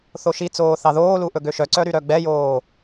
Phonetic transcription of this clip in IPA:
θ o ʃ i t͡s oː θ ɑ ð oː l u ʔ ɵ ɡ ø ʃ œ ǀ œ ɾ y ɾ œ ɡ͡b ɛ j oː

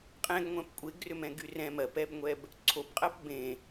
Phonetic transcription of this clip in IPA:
qʼ ɛ̃ ɡ ŋʷ ɛ̃ p kʷʼ e ɡ r ʏ m ɛ̃ ɡ y r ɛ̃ m ɜ p ɛ b ŋʷ ɛ b | ǀʰ o p qʼ ɜ p b ẽ

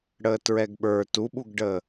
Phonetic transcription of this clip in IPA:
ɽ əː t ɹ ɛ ɡ ɓ ə˞ t u ɓ u ɡ ɖ əː

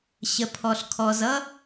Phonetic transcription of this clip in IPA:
ɕ ə˩ pʰ ɔ˩ ɬ kʰ ɔ˩ z ʌ˥

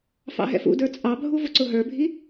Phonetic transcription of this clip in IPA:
f ɑ̰ ɦ ɛ̰ f ṵ d ə˞ t͡sʼ ɑ bʱ u v ʊ ǀ ʊ ɦ ə˞ bʱ i

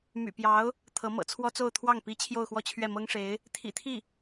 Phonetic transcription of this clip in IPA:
m y̰˨˩ p j ɑ˧˥ ʊ̯ | t̪ʰ ɤ˧˥ m ɤ̰˨˩ t͡sʰ w ɔ˥ t͡s o˥˧ ʊ̯ t̪ʰ w ɑ˥˩ ŋ p i˧˥ t͡ɕʰ j o˥˧ ʊ̯ x w ɔ˥˧ t͡ɕʰ ɥ ɛ˥˩ m ɤ˥ ŋ ʂ e˧˥ ɪ̯ | t̪ʰ ḭ˨˩ t̪ʰ i˥˩

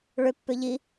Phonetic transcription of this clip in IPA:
ɭ ʏ pː ʏ ʎ i

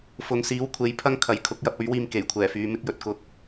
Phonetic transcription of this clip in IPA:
f ʊ˨˧ ŋ s iː˨˥ w kʷʰ e˨˥ j pʰ ɐ˥ ŋ kʰ ɐ˨ j kʰ ʊ˨˥ k̚ j ɐ˨˥ p̚ ɵ˨˥ ɥ w iː˧ m k e˨˩ j kʷʰ ɛː˨˩ f yː˧ m ɪ˧ k̚ j ɵ˨˥ t̚ k ʊ˨˥ k̚

